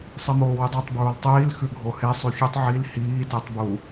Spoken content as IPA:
sˤimoːwidˤytˤ bɹoltˤiːl xʉɡʱohe sˤʉçutˤ ʕil hiː tetˤ bu

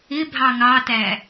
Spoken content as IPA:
ɪbʱɑ ŋɑtæ

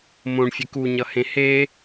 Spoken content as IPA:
mõɳfʲek uɲʌhẽ he

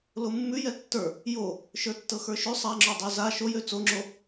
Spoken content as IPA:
lomːʉ jɛtːə˞ | jo | ʃə˞tːɤxə˞ʃø sˤaŋ͡ǁo dˤʉza ʃojø t͡soŋ͡ǁo

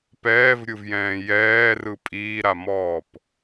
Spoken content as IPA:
pɛːvɾʲɯvjɛ̃ː jɛːrɯ pʼiːɾamɔːp

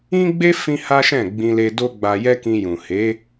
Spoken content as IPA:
ĩ˦ɡ͡be˦ fĩ˦ha˦ʃɛ̃˦˨ ɡ͡bĩ˧le˧ do˦ɡ͡ba˧jɛ˦kĩ˧ jũ˨he˨˦

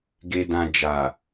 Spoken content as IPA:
ɡe˨dã˨ d͡ʒa˨

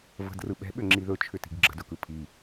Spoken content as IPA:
və̤drɯ ɓɛ̤ɓʏŋ͡ǁi ðɵt͡ʃʰʏti̤ɡ ɡ͡ǁə̤dɵkɯ pʰi

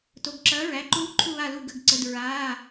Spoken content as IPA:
to˩˧˩ɡǁɐː˨˥ ɹæ˩˧˩ǃuː˦˥ ǃʰu˦˨βa˦˨lu˦˨ ɡə˩˧˩ɡǀə˩˧˩d ɹaː˩˧˩

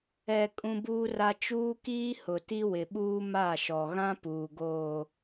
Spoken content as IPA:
ɛ˨ kʼũ˦buː˦ra˦ t͡ʃuː˦kiː˦ hʊ˨ti˦wɪ˨ɓuː˦ ma˦˨ʃɔ˨ ɣã˦ puː˨ɡoː˨

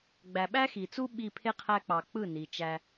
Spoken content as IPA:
ɡ͡bæ˨ɓæ˦xi˨t͡su˦ ɓi˧pʰe˦qʰæ˧k͡pɑ˨ k͡pɯ˦˨ni˨ t͡ʃæ˦

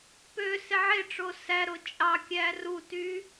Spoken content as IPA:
pø seʕeʈ͡ʂo sæɾo t͡ʃʼɑkʲæ ruty

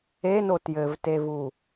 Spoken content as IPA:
eno tjɘvtevu

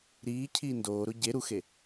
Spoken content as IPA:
ɾiːcʰiː ndoːɾo ɟe ɾuxe

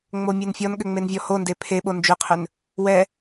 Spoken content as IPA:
ŋ͡momʲɛnfʲɔnɠʏ ŋ͡menvʲɔhonde pʰeɓo nd͡ʒʏqʰʏn | wɛ

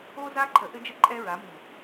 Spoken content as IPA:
o˦za˦ǃʰə˨ ʔɘ˦d͡ʒə˦ ǃʼɛ˦ɹa˨˦mi˨

